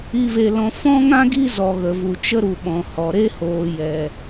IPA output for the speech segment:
i˧ve˧lɔ̃˧ fɔ̃˦ŋã˦ɡi˦ zɔ˧ɣə˧vu˧ t͡ʃə˦ɾu˧ɓɔ̃˧ hɔ˧ ɾe˦hoː˧ jɛ˧

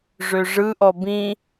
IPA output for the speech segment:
ʐøʐɯʔɔ bĩ

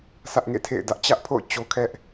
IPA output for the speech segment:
sä˦ʔŋḛ˦˨tʰḛ˦˨ɪ̯dä˦ʔ t͡ɕä˦ʔpʰo̰˦˨ʊ̯ t͡ɕo˦kʰɛ˦ʔ

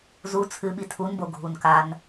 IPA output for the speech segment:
zu t͡sʰɨɓi tʰunbo ɡʱunkan

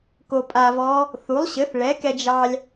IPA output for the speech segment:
ko˧pʼa˧vɔ˧˥ | θu˩˥lˠɕɘ˩˥θɭɛ˩˥kɛ˧ d͡ʒɑ˧lʲ

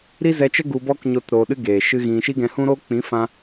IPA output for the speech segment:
ɾi˦zɛ˧t͡ʃə˦ ɡu˧bɔ˦kɲo˧t ɾoː˧ɗɨ˦ ɡeː˨ʃɨ˦ɣĩ˧ ʃi˦ɡɛ̃˧hũ˦ɾoː˦ k͡pĩ˨˦ fã˦

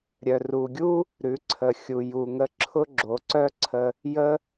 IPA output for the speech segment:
ɾʲœ˩ru˩ɡʲu˥ | ɾʉ˩˧ǀʰə˩xʲu˩ ju˩ŋə˧ǁʰʊ˥ ɡ͡ǁo˩˧ǀœ˥ǀʰə˧ | jə˥

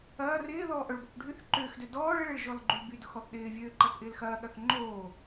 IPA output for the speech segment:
ɐː rɪː ðɔːʔœɭbɔk ɖʱyθ ǃʏːxdø dɔːɭ ɪɭeɭ ʒɔlɡ͡ǃylbydʊx ɔθɗɪːvʲøː ǃɐθʔɪːlxɐːɠɐθ ŋ͡ǃoː

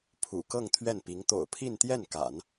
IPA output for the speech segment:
pʰṵ˨˩kɤ˥˧ŋ t̪ʰɥɛ˥˩npi˧˥ŋ t̪o̰˨˩ʊ̯ pʰi˥˧nt̪jɛ˥˩nka̰˨˩˦n

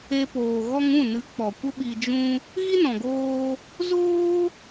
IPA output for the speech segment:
e˧poː˨ ɣɔ˧ŋ ũ˦˨nɨ˨˦ k͡pɔ˨kʷə˦ɓi˧ d͡ʒũ˦ | ɣi˦nɔ̃˨ɡoː˧ | zoː˦

